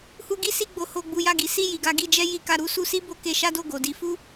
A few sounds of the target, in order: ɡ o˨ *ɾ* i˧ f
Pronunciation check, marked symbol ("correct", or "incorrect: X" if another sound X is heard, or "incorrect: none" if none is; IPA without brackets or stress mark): incorrect: d